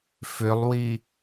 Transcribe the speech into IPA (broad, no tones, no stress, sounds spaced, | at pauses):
f ʏ lˠ w i